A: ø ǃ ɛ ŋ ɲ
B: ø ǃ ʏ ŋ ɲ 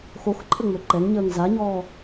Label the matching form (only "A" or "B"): A